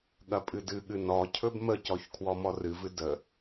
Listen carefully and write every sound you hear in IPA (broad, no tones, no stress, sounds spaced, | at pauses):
ɠ ɐ pʼ ɨ d ɨ ɠ ɨ n ɔ cʰ ɵ b m ə c ɔ ç kʰ w ɔ m ɔ r ɨ v ɨ d ə